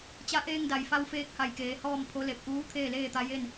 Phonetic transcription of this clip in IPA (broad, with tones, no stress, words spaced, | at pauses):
t͡ɕa˧˥ʔeː˧ŋda˩jfa˧w feː˧˥k̚ha˧˩jkeː˩˧ hɔː˥˨mpʰo˧˥le˧˩p̚ ʔuː˧˥ t̪ʰeː˥˨leː˥˨t̪a˧˥ je˥˨n